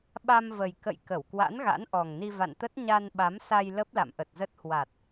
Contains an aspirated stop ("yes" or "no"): no